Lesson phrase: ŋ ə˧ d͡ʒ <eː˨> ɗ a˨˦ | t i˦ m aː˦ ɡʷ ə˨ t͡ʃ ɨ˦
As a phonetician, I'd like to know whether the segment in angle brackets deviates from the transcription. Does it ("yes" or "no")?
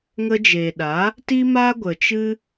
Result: no